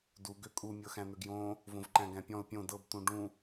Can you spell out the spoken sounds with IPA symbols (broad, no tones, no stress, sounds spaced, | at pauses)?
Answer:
d u ɡ ø kʼ u mʲ ɤ x æ̃ n̪ ø ɡ j õ | v õ v ǃ æ̃ ɡ æ̃ pʲ ɔ̃ ʊ̯ pʲ õ d ɤ b t̪ ũ ɖ ũ